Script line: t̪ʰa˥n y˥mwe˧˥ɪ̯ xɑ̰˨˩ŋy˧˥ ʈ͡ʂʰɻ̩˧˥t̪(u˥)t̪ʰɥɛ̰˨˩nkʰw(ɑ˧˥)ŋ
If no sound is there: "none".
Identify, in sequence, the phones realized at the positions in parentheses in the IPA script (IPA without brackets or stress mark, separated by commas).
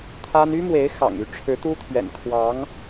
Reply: u˥, ɑ˧˥